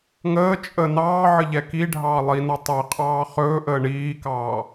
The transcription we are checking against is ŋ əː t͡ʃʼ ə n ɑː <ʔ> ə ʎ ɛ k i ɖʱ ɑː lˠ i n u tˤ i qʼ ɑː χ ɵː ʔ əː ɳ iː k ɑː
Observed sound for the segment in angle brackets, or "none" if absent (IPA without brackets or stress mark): ʕ